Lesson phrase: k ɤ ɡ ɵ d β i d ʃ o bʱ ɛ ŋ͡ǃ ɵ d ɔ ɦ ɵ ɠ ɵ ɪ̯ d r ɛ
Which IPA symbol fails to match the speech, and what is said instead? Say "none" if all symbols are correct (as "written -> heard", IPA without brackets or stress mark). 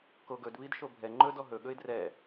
ɤ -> o